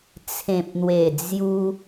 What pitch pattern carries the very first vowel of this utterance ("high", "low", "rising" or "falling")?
low